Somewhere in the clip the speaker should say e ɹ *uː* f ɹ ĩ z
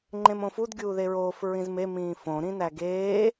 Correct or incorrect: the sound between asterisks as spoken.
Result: incorrect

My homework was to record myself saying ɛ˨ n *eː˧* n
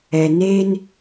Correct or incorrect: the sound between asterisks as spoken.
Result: correct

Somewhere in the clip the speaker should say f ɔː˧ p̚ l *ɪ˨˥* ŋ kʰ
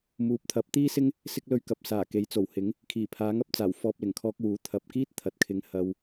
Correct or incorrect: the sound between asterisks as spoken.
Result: incorrect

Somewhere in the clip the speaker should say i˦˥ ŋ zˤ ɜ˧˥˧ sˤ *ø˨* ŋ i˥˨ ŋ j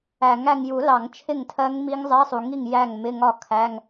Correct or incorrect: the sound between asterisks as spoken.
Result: incorrect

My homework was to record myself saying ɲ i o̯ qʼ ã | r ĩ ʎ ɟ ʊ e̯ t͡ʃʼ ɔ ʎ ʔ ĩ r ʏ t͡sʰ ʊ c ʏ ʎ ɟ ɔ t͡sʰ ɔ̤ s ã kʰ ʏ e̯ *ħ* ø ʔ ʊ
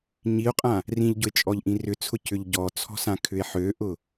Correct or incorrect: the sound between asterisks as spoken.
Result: correct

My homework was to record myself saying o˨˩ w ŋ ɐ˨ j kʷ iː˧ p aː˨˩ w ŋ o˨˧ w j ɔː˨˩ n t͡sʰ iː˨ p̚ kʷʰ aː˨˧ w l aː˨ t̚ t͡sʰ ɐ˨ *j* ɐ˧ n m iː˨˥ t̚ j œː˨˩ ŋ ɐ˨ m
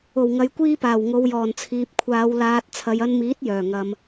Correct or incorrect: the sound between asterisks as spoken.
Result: correct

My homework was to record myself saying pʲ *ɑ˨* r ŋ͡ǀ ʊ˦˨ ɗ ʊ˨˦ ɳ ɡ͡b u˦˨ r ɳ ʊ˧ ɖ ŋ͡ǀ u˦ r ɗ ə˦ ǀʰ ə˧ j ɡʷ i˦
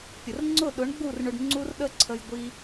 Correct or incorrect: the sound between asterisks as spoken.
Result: incorrect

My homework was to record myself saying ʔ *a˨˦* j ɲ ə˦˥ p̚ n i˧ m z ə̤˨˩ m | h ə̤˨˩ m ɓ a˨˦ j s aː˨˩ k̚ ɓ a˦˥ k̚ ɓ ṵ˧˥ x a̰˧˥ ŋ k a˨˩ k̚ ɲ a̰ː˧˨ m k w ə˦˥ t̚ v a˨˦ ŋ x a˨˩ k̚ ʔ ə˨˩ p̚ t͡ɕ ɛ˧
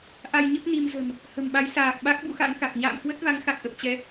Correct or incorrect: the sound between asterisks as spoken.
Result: incorrect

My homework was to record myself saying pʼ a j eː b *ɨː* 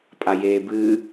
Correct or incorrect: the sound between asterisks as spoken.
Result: correct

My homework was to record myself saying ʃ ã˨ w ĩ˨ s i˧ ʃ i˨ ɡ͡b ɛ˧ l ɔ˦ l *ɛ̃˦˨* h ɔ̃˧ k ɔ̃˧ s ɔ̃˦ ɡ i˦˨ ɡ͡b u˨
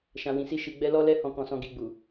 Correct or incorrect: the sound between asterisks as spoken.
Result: incorrect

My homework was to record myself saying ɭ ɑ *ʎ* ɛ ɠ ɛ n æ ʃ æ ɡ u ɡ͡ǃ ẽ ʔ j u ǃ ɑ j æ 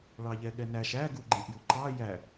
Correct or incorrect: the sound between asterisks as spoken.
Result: correct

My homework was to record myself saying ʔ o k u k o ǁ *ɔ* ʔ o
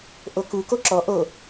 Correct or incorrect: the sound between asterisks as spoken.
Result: correct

